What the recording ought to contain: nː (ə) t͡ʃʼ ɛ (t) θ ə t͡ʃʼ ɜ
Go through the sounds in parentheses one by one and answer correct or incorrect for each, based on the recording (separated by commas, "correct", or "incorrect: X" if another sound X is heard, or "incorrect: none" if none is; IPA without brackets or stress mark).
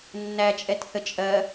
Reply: incorrect: æ, correct